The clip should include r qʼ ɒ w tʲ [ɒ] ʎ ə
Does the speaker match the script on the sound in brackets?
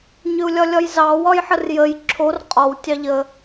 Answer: no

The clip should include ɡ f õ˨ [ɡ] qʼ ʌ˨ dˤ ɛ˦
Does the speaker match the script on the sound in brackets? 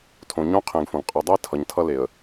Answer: yes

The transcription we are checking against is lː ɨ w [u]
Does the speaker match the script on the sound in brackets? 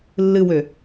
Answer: no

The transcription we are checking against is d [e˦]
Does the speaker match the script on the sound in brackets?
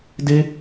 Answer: yes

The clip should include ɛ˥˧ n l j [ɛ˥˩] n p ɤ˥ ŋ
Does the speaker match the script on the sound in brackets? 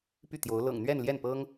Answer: yes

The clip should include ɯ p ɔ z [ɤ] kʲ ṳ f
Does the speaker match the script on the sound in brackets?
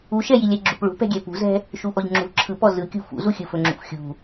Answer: no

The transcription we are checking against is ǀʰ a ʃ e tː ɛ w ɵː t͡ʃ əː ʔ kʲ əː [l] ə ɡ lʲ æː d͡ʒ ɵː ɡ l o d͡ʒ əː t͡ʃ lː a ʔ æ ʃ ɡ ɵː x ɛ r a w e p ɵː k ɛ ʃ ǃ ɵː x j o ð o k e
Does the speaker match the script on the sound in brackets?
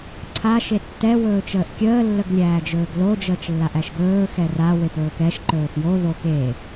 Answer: no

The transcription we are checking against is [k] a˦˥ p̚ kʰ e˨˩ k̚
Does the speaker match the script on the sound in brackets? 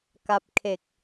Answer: yes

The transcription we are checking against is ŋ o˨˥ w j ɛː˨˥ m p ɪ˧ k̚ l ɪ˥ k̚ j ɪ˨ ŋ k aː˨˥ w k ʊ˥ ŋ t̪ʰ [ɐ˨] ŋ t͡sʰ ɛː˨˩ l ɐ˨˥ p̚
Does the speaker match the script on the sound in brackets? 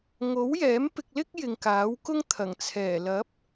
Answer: no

